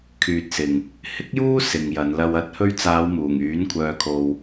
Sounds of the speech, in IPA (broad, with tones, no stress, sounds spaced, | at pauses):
kʰ yː˨ t̚ s ɪ˨ ŋ | h ɪ˥ k̚ j uː˥ s ɪ˨ ŋ j ɐ˨˧ n l ɐ˧ w ɐ˨˥ t̚ h ɵ˧ ɥ t͡s aː˨˧ w m uː˨˩ ŋ yː˨˥ n kʷʰ œː˧ kʰ o˧ w